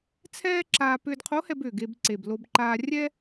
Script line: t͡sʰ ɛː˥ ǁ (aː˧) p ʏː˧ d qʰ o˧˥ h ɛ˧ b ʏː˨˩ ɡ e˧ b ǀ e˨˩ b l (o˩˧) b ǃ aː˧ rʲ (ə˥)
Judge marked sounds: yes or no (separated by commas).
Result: yes, no, no